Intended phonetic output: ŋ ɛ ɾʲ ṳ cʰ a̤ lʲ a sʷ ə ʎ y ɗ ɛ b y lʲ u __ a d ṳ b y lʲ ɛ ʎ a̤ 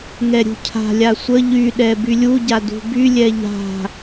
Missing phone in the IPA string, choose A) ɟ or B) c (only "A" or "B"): A